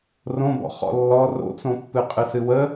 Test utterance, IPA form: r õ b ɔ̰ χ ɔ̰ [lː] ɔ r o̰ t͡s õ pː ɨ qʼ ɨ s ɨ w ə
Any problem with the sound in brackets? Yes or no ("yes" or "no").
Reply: no